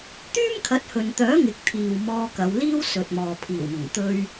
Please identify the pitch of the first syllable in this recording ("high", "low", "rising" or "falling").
high